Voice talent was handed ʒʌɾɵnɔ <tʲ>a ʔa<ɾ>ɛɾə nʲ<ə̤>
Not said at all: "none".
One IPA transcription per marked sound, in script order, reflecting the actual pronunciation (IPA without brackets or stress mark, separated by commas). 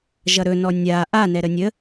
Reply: nʲ, n, ə